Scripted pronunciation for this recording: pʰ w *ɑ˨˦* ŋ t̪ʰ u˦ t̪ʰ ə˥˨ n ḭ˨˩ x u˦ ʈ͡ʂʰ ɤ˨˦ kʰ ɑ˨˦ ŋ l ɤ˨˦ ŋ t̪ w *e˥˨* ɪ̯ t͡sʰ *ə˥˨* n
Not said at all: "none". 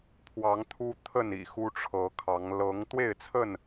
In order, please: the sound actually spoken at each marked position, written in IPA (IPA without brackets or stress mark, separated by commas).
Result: ɑ˨˦, e˥˨, ə˥˨